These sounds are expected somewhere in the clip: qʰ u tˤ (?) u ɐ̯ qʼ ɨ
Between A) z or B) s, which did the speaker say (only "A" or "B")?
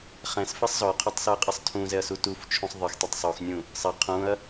B